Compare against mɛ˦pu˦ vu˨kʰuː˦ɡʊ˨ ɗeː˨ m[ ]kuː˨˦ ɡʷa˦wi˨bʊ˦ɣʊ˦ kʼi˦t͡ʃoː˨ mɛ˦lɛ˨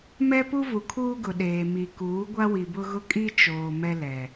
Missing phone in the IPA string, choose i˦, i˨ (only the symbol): i˨